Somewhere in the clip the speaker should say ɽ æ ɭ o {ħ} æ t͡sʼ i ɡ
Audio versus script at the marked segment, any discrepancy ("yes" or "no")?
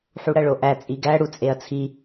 yes